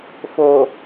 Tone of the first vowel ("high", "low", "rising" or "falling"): low